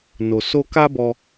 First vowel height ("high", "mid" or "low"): mid